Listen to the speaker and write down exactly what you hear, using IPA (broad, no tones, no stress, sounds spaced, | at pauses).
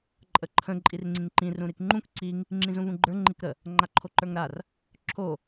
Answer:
ǃʼ ə ǃʰ ə̃ ǃʼ i r ŋ͡ǀ ĩ ŋ ǃ ĩ r ũ ɾ i k ŋ͡ǃ ũ k ǀ i ŋ | ŋ͡ǁ ĩ z ũ v ũ ɡ͡ǃ ə˞ ŋ͡ǃ i k ɾ ə | ŋ͡ǃ a ǃʰ o ǃ ə˞ ŋ ɾ a r | ǁʰ o